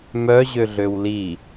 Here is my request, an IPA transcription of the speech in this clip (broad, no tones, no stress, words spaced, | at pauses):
mœʑøɮøw li